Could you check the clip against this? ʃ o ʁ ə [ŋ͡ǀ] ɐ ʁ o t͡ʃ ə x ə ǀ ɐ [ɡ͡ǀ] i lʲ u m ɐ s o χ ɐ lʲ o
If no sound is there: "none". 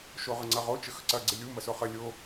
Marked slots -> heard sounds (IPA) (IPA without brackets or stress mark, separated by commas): ŋ͡ǀ, ɡ͡ǀ